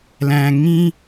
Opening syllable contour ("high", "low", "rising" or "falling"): low